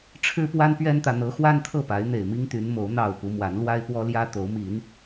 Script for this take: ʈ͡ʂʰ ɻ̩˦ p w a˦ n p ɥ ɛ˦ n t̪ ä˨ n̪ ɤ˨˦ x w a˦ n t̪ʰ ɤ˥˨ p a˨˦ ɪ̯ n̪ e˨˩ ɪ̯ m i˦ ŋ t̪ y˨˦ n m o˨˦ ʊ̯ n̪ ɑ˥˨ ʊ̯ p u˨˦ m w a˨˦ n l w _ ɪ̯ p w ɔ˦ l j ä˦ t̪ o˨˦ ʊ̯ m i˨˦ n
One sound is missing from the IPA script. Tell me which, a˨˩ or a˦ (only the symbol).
a˦